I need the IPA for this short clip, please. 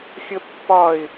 xʲ ə pː ɒ ɪ̯

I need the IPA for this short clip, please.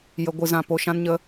j ə˧ ɡʷ ɨ˧ z ã˧ p o˧ ʃ ã˦ n ɲ ə˦

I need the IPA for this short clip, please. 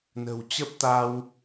n ə̤˨˩ w t͡ɕ ə˦˥ p̚ t̪ a˧ w

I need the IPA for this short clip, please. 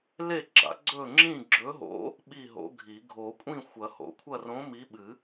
l e˥˨ ɡ͡ǁ a̰˨˩˦ ɡ͡ǀ ɵ˥˨ ŋ͡ǁ ĩ˥˨ ɡ͡ǁ ɵ˨˥ ɦ o̰˨˥ | ɓ i˥˨ ɦ o̰˨˥ ɡʱ i˨˩˦ ɡʱ o˨˩˦ kʷʼ ĩ˥˨ xʷ ɐ˨˩˦ h o̰˨˩˦ kʷʰ ɐ˥˨ r õ˨˥ m i˨˥ ɓ ɨ˨˩˦

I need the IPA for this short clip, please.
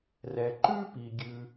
r ɛ˩ ǃ ʉ˥ p i˩ ɡʲ ʉ˩

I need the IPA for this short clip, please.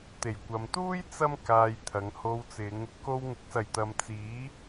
t̪ e˨˩ j kʷ ɐ˨ m t̪ uː˥ j t͡s ɐ˥ m k aː˧ j t̪ʰ ɐ˨˧ ŋ h o˧ w t͡s ɪ˨˧ ŋ | k o˧ w ŋ ɪ˨˥ k̚ s ɐ˨˩ j t̪ ɐ˨ m t͡s iː˨˥

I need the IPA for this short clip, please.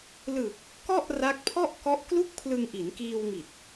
l ɯ˨˩ k̚ | k ɔ˥˩ ʔ r a˦˥ k̚ pʰ ɔ˥˩ ʔ k ɔ˦˥ ʔ k l u˥˩ k̚ pʰ l ɯ˧ ŋ ʔ i˩˦ n k iː˧ w ŋ i˨˩ t̚

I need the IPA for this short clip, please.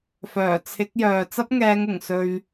f œː˨˩ t͡sʰ ɪ˨˥ k̚ j œː˨ t͡s ɐ˥ p̚ ŋ ɛː˨˧ ŋ ʊ˨˩ ŋ s ɵ˧ ɥ

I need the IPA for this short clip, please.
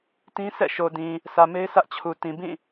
t ĩ˦ s ɛ̰˦˨ ʃ o˨ d ĩ˨ | s ä˨ m e˦ ɪ̯ s ä˦ ʔ t͡ɕʰ u˨ t ĩ˨ b ĩ˦˨

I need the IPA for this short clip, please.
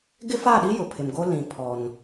ɡ ɪ˦ f aː˦˨ ɗ i˦ j ʊ˨ pʰ ɪ˨ m ɡ o˦ l ĩ˨ pʰ ɔ˨ n

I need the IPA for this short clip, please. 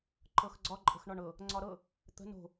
ǃ ɤ x ɡ͡ǀ ɒ ǃʼ ə̤ x ɳ ɒ ɳ ɤ | ŋ͡ǀ ɒ ɾ ɤ | t̪ ə̤ n o̤

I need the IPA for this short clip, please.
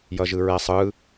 j ʌ ʒ ɯ ɹ ɛ sˤ ɯ

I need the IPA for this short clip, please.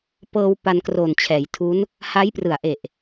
p ɤː˧ w p a˧ n k r oː˨˩ n t͡ɕʰ ɛː˩˦ j tʰ u˦˥ n | h a˦˥ j p r ɯ˨˩ a̯ ʔ e˨˩ ʔ

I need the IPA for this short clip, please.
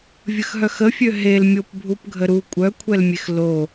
vʲ ə x ɦ œ x ə fʲ ø ɦ e l mʲ o p bʱ u p ɡʱ ə ɾ u kʷʼ œ kʷʰ ɛ l mʲ e x l o

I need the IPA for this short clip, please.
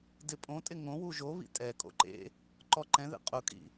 d ɪ pʼ õ tʼ ɪ ŋ õ w u ʒ o β ḭ tʼ ɛ kʼ o̰ ǃ ḛ | ǃ ɔ ǃ ɛ̃ ð ḛ qʼ ʊ kʼ ḭ

